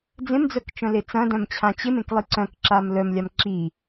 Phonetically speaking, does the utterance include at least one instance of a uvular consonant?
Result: no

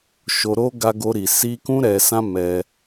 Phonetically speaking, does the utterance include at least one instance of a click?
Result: no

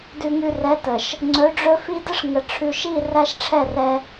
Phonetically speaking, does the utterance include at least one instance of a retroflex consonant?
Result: yes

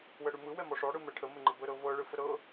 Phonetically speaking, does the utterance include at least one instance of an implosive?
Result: no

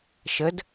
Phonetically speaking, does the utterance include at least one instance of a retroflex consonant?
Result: no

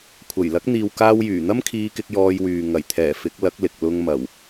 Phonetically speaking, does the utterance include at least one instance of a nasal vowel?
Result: no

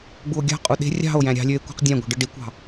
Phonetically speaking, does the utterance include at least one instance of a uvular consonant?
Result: yes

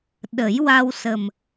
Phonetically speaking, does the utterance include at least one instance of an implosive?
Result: yes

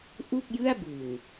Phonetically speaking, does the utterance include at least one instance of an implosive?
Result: no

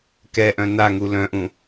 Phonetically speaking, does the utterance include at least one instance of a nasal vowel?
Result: yes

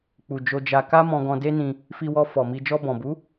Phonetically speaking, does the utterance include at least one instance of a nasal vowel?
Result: yes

